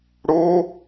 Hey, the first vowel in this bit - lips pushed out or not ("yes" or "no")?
yes